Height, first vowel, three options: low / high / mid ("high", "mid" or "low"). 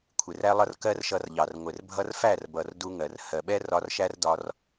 high